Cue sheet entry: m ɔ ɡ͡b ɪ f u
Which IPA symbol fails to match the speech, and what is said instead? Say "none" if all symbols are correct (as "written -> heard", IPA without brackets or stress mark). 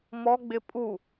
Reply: f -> pʼ